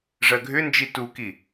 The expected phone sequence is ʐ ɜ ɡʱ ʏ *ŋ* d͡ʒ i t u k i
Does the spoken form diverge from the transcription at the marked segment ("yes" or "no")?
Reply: yes